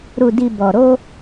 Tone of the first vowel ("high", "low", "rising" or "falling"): low